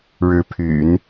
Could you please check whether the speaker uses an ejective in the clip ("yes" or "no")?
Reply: no